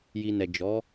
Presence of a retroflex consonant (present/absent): absent